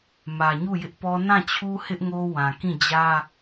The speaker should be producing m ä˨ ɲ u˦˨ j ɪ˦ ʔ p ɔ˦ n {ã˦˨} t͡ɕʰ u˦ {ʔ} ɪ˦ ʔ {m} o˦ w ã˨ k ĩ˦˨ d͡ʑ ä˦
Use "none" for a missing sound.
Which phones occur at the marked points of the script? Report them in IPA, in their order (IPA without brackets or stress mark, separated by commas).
ã˦˨, h, ŋ